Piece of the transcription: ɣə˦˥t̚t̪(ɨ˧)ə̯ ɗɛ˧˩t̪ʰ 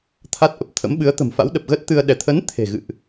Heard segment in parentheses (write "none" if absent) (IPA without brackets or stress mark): ɨ˧